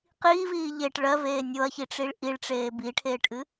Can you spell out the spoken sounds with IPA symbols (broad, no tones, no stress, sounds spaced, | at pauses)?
q iː v iː ʎ e ʈ ɭ ɜ v eː nʲ o ɐ̯ ç i ʈ͡ʂ i ɭ ʔ i ɭ ʈ͡ʂ eː b i ʈʰ eː ʈ ʔ ɨ